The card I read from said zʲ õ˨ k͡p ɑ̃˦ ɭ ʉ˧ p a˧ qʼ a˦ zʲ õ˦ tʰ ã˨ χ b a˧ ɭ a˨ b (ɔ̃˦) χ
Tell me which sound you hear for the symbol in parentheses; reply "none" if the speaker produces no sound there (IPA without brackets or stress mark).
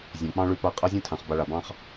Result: ɑ̃˦